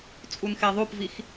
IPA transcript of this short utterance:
t͡sʼ u n x e ðˤ u p v i x

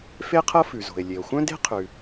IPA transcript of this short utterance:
f e˥ qʰ ɤ˥ f ʉ˩ z o̤˩ e̯ lʲ e˩ o̯ xʷ œ̃˥ d e̤˥ qʰ ʉ˩

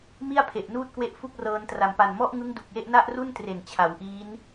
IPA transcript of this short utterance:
m i˥˩ a̯ pʰ e˨˩ ʔ n uː˥˩ t̚ k w e˦˥ ʔ f u˥˩ k̚ r ɤː˧ n t r a˨˩ m p a˨˩ n m ɔ˥˩ ʔ ŋ ɯ˦˥ ŋ d u˨˩ k̚ j e˥˩ ʔ n a˥˩ ʔ r u˥˩ n t r e˨˩ n t͡ɕʰ a˩˦ w ʔ iː˦˥ n

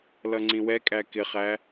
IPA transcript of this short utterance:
l ʌ ŋ͡ǀ ĩ w ɛ kʼ æ k ɪ χ æ

